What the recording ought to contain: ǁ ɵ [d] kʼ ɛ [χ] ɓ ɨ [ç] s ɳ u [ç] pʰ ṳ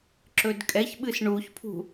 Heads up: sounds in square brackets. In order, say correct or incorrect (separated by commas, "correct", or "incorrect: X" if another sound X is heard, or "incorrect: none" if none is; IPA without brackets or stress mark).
correct, incorrect: ç, incorrect: none, correct